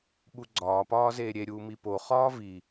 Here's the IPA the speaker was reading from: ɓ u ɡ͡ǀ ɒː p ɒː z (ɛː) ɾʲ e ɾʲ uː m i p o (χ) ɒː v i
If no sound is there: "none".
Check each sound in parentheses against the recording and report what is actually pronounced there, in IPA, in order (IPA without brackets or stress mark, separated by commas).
eː, χ